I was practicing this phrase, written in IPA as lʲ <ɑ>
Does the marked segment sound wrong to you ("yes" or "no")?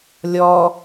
yes